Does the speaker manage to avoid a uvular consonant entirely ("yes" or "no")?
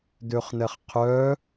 no